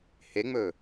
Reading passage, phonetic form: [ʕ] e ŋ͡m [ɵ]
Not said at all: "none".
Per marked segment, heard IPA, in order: h, ɵ

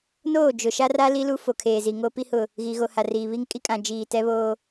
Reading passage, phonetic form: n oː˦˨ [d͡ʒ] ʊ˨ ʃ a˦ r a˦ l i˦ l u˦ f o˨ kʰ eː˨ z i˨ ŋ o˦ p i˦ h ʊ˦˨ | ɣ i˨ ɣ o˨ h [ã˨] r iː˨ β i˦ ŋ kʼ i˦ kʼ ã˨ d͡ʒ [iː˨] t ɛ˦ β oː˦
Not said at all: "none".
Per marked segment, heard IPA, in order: d͡ʒ, a˨, iː˨

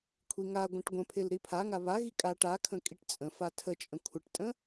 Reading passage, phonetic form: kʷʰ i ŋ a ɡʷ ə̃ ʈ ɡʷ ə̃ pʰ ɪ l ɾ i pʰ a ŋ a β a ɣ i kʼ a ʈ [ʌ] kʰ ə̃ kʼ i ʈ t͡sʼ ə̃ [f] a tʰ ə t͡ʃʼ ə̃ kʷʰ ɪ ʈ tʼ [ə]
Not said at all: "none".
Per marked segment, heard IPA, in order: a, f, ə̃

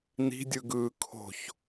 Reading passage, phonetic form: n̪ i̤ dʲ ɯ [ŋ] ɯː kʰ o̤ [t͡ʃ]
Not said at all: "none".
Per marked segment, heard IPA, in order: ɡ, ç

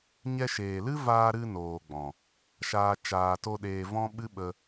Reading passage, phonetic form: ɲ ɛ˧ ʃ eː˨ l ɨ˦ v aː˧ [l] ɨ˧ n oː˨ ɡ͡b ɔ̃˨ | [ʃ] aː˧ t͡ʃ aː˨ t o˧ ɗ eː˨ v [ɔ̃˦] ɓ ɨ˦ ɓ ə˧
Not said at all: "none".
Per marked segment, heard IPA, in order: ɾ, ʃ, ɔ̃˦

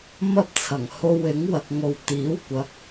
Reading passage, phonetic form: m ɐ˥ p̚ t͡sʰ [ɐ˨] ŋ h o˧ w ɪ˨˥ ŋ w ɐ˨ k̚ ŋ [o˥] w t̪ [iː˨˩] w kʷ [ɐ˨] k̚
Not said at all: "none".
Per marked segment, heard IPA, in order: ɐ˨˩, o˨, iː˨˥, ɐ˨

